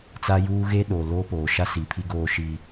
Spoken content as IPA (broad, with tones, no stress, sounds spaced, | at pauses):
t͡s a˦ j uː˦ ɣ e˦ ɗ oː˨ l oː˦ p oː˨ ʃ a˦ s i˨ pʰ i˦ ɡ oː˦ ʃ iː˦